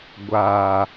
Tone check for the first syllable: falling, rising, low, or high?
low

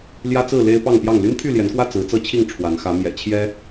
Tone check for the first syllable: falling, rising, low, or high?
high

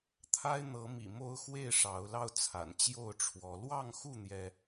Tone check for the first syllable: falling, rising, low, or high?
high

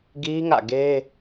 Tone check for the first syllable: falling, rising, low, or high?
high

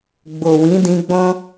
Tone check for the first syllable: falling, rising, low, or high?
low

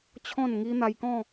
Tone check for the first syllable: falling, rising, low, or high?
falling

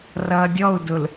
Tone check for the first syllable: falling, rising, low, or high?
low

